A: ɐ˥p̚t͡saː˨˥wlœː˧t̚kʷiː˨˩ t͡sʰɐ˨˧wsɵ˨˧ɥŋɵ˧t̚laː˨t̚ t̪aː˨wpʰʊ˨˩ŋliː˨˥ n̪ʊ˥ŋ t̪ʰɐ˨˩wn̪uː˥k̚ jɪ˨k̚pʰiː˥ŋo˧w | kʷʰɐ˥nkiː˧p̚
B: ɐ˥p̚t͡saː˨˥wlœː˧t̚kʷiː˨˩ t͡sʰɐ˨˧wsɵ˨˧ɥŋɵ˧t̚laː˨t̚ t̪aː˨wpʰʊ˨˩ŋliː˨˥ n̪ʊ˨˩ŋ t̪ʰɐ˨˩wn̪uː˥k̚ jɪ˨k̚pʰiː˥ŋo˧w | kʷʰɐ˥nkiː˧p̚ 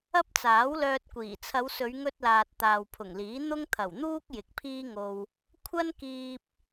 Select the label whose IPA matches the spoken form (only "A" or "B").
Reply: A